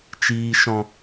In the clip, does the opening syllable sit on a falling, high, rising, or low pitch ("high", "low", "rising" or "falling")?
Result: low